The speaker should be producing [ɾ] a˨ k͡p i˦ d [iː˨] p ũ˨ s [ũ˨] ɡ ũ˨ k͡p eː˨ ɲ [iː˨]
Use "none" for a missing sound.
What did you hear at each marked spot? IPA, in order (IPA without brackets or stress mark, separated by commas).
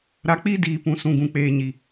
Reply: ɾ, iː˨, ũ˨, i˨